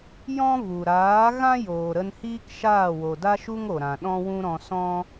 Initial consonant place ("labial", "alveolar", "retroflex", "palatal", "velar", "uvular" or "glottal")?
palatal